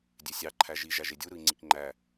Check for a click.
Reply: present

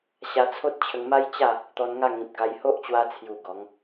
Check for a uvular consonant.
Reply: absent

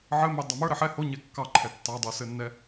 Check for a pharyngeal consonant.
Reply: present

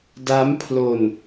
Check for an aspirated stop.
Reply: present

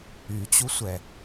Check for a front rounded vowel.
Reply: present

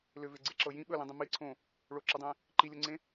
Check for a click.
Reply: present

